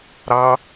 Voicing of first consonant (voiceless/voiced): voiced